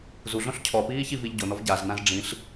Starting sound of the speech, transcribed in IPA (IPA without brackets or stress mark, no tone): z